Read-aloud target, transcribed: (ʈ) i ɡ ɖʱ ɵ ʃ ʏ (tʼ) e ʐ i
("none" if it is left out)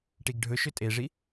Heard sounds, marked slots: ʈ, tʼ

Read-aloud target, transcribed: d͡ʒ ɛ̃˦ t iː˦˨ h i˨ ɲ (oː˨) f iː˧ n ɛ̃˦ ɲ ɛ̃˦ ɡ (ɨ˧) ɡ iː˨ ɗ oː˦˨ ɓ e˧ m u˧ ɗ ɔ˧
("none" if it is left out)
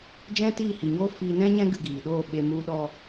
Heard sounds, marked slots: oː˦, ɨ˧

